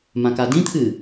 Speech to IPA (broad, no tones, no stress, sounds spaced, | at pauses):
m ã k a d ĩ t̪ʰ ɨ